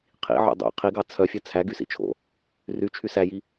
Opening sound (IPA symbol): qʰ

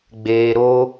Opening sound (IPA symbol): ɡ͡b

